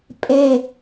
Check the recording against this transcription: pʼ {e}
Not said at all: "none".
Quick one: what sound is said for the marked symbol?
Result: e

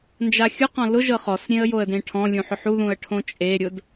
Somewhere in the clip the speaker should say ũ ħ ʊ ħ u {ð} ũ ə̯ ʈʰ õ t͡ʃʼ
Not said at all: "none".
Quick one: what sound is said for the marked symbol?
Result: ð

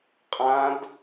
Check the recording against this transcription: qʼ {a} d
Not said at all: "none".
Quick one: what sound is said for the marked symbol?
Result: ã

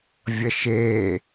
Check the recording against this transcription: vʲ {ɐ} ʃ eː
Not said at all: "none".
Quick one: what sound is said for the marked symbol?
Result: ɐ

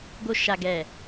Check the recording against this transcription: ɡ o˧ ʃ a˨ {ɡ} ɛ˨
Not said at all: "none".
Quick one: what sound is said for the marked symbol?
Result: ɡ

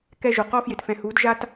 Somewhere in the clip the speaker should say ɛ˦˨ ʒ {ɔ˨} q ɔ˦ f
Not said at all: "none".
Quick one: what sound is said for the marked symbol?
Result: o˨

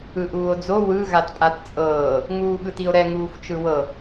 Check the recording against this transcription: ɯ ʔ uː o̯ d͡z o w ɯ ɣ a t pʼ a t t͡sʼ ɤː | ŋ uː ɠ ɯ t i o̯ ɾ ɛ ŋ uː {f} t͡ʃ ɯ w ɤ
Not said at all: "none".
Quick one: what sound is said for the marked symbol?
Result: f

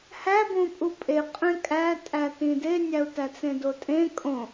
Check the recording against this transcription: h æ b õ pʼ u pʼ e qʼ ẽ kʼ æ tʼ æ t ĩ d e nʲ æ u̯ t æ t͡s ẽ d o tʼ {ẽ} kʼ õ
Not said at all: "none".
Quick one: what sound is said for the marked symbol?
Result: ẽ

